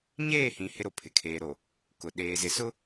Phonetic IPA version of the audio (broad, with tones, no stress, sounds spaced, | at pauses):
ɲ eː˦˨ h ĩ˨ h ɪ˦ ɾ o˨ pʰ ɪ˨ kʰ eː˨ ɾ o˨ | k ʊ˨ ɗ eː˨ z ɪ˨ s ʊ˦